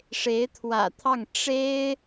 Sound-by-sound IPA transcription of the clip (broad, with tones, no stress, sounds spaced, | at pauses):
ʂ e˧˥ ɪ̯ t̪ʰ w ä̰˨˩ t̪ʰ ɑ˥˩ ŋ ʈ͡ʂ e˥ ɪ̯